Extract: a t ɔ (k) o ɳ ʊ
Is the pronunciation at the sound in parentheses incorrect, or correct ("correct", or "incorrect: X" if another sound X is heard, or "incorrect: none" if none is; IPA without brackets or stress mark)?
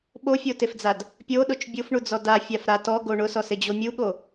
incorrect: ɡ